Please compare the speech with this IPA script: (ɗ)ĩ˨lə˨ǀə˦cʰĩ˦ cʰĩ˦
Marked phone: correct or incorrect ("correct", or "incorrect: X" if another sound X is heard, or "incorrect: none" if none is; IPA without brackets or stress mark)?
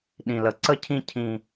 correct